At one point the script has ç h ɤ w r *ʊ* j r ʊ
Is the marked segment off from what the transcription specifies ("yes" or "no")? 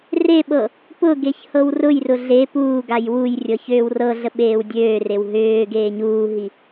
no